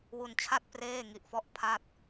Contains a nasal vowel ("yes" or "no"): no